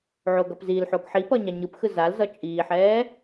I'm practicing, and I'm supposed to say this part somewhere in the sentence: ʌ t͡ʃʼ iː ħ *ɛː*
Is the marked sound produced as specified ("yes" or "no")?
yes